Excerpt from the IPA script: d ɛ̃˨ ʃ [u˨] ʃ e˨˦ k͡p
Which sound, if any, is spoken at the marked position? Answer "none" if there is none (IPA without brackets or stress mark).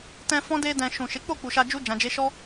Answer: ũ˨